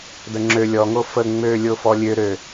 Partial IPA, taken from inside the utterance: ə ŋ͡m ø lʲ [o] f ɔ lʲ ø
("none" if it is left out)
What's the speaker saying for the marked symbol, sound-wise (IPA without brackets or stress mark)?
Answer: o